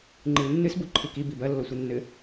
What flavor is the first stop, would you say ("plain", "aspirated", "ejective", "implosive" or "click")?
click